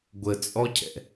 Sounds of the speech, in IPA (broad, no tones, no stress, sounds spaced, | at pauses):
ɡʷ ə t͡sʼ ɔ cʰ ɛ̰